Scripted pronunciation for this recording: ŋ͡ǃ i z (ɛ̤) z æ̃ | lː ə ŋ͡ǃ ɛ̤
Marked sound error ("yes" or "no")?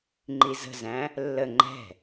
yes